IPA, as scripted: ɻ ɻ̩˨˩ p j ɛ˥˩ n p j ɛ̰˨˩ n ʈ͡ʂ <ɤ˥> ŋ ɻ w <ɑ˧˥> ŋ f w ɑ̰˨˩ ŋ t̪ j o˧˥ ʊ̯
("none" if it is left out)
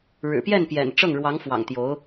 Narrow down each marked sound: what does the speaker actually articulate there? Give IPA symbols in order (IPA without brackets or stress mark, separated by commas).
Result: ɤ˥˩, ɑ˧˥